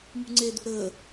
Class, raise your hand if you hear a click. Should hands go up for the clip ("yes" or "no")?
yes